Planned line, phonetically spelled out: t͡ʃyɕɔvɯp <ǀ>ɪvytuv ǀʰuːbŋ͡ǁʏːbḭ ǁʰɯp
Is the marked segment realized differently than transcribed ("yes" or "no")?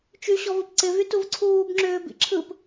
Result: no